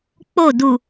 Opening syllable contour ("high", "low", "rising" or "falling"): falling